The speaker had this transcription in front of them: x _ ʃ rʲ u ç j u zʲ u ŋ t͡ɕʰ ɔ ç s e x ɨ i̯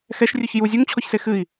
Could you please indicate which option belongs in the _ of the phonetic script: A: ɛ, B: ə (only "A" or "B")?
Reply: A